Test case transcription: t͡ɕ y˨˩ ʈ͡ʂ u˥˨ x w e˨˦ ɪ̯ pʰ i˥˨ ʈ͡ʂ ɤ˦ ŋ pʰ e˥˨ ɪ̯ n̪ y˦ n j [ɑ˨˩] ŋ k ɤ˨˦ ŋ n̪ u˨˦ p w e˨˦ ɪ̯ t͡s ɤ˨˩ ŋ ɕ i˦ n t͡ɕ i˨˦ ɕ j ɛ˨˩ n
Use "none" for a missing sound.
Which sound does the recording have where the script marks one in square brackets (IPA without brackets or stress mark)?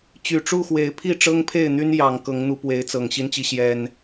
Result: ɑ˨˩